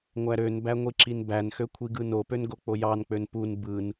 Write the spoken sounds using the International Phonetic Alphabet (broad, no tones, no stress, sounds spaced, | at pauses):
ŋʷ æ ɾ ø n b æ ŋʷ i ǁ i n b æ n x ø kʷʰ i ɡ ɯ n o p ø n ɡ o k͡p o j ɑ n k͡p ø n p u n b ɯ n